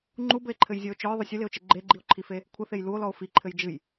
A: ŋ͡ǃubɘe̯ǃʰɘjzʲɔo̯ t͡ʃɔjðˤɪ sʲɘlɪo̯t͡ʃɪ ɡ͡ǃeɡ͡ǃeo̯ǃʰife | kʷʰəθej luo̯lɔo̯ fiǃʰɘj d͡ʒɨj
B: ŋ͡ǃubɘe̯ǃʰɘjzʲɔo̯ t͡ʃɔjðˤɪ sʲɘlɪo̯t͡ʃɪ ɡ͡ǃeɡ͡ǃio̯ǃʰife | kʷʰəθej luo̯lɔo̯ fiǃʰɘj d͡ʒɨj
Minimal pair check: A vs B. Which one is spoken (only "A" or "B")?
B